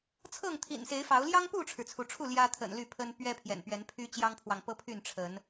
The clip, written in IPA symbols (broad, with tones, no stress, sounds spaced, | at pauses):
t͡sʰ ɤ˥˨ ŋ t̪ʰ ḭ˨˩ n s e˨˦ ɪ̯ f ɑ˨˦ ʊ̯ l j ɑ˦ ŋ p u˥˨ ʈ͡ʂʰ ɻ̩˩ t͡sʰ u˨˦ ʈ͡ʂʰ u˥˨ l j ä˦ t̪ʰ ə̰˨˩ n l y˥˨ pʰ ə˦ n p ɥ ɛ˦ pʰ j ɛ̰˨˩ n p ɥ ɛ˨˦ n pʰ y˦ t͡ɕ j ɑ˦ ŋ pʰ w ɑ˨ ŋ p ɤ˦ pʰ y˥˨ n ʈ͡ʂʰ ə˨˦ n